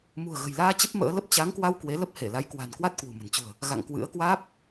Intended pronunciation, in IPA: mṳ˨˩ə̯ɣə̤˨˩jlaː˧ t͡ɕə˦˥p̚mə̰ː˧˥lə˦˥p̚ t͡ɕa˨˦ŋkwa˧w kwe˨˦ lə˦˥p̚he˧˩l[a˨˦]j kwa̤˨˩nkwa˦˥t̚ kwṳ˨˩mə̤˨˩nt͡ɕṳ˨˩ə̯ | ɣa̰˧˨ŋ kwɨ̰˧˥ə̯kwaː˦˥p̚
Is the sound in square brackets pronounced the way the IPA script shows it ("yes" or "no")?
yes